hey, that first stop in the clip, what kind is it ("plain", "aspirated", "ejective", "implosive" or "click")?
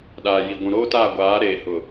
implosive